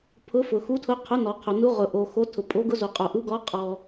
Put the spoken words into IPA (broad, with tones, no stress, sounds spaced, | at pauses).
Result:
pʰ ʊ˨˥ f ʊ˩ x u˨˥ tʰ ʊ˨˥ qʰ ʊ˨˥ n ɔ˩ qʰ o˩ n u˨˥ ʁ ʊ˩ ʔ o˩ x o˨˥ tʰ ʊ˩ pʼ o˨˥ ɡ ʊ˨˥ z o˩ qʼ o˩ ʔ u˨˥ ɡ ɔ˨˥ qʼ ɔ˩